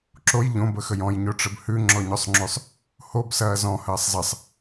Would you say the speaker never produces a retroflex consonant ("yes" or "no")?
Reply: no